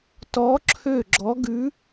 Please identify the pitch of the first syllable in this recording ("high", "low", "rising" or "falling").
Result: rising